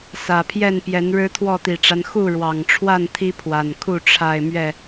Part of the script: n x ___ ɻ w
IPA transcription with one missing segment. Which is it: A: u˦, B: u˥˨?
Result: B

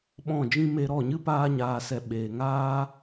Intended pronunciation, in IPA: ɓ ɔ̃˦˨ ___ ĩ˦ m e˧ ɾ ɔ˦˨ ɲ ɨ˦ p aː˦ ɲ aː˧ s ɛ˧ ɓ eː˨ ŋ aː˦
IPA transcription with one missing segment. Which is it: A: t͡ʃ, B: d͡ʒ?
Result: B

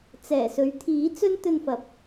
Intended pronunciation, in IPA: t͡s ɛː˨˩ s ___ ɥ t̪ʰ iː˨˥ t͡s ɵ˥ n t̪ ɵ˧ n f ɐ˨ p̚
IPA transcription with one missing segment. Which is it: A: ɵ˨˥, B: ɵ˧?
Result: A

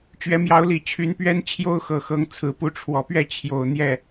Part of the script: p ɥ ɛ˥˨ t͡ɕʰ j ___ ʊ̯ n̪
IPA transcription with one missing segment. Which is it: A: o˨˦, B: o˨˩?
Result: B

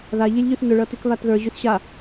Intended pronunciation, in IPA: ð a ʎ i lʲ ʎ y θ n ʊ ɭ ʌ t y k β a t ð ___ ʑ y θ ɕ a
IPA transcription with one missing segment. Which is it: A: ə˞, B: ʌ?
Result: A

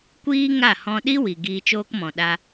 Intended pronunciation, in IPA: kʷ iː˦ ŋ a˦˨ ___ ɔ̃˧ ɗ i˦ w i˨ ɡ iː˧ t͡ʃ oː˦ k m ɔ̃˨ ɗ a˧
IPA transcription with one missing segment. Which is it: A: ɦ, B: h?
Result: B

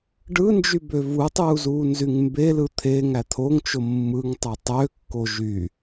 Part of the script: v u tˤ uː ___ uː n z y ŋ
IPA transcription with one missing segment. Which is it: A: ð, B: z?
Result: B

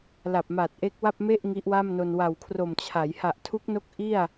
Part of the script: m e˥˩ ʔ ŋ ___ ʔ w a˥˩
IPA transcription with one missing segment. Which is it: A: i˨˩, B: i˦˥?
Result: B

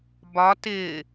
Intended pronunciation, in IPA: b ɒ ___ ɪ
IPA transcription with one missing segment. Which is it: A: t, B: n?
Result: A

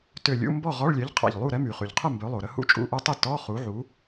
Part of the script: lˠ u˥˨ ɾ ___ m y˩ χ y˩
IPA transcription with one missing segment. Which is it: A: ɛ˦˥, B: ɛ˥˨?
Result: A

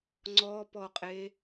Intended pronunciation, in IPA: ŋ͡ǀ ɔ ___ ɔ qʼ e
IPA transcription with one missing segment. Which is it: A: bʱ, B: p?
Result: B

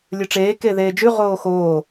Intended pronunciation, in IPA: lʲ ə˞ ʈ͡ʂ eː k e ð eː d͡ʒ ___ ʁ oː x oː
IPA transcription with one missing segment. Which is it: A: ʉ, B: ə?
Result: A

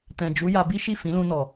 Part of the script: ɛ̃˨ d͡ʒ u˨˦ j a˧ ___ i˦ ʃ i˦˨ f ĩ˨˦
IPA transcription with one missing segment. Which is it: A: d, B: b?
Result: B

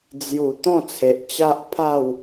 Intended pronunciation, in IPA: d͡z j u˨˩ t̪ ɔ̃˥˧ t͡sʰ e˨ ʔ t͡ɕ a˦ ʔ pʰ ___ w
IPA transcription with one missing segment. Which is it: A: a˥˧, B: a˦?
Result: A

